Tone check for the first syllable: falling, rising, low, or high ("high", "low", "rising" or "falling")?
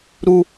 high